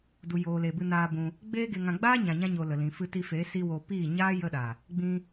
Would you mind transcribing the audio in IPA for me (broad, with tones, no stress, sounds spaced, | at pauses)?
d u˨ j oː˨ l e˨ b ɨ˧ n aː˧ b ũ˧ | ɡ͡b eː˦ ɡ e˧ ŋ ã˧ ɡ͡b aː˦ ɲ ã˨ ɲ ã˧ ɲ o˨ l ə˨ l ĩ˨ f ɨ˧ t i˧ f eː˨˦ s i˧ w o˧ p iː˦˨ ɲ aː˦ j ə˧ ɗ a˨ | ɡ͡b ĩ˧